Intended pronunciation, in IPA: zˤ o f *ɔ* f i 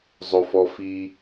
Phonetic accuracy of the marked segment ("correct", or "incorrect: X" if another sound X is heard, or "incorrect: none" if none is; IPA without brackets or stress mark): correct